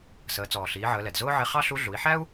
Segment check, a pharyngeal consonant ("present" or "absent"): present